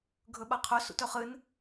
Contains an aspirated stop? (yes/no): yes